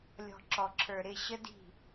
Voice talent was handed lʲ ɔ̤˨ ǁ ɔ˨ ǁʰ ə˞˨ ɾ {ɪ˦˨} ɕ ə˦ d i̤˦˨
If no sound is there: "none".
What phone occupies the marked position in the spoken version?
ɪ˦˨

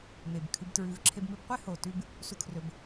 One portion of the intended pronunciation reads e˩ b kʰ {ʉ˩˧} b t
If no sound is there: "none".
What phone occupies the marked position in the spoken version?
ʉ˩˧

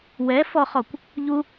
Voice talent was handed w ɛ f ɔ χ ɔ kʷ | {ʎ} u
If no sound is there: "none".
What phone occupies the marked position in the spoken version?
ʎ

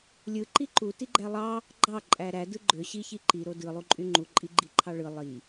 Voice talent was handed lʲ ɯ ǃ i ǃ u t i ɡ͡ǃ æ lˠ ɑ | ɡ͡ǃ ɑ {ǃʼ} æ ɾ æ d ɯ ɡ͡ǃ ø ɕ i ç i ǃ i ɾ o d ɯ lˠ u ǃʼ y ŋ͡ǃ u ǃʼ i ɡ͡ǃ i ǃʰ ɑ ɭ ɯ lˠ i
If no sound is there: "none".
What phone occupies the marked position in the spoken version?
ǃʼ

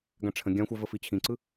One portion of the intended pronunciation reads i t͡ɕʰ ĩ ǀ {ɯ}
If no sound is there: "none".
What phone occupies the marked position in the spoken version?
ɯ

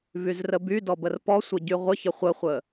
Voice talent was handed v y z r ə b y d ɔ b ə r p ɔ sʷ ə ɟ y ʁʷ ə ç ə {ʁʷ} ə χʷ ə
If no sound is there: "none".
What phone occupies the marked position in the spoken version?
χʷ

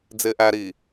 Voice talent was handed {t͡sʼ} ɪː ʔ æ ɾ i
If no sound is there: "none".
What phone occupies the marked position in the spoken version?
d͡z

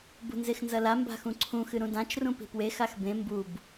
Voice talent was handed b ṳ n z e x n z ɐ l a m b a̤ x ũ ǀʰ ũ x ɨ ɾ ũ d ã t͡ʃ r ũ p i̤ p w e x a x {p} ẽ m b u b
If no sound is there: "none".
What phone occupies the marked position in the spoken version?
b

